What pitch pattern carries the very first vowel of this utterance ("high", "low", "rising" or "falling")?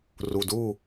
low